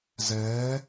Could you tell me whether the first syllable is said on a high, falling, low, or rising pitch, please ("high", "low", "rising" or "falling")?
rising